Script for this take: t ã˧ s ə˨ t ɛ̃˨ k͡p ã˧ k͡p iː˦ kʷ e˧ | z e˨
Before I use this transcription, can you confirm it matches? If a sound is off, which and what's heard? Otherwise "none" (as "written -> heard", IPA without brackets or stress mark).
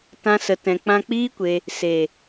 z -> s